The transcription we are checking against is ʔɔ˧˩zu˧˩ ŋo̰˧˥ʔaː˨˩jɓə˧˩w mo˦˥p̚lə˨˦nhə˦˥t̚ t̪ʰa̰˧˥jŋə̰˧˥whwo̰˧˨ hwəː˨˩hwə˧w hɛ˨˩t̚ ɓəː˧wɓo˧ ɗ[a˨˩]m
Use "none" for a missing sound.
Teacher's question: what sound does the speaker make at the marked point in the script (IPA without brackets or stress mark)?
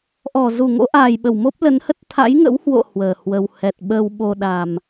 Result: a˨˩